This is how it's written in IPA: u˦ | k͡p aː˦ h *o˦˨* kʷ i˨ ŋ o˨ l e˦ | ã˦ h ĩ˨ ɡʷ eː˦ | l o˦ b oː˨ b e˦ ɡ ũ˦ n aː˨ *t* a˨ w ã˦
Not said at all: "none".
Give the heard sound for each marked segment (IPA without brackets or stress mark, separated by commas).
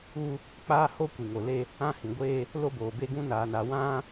o˦, n